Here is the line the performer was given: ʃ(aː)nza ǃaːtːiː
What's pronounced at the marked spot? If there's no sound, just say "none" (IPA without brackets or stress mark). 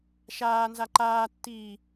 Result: aː